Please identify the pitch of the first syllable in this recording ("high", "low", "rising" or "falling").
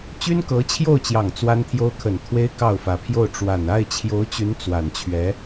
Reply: high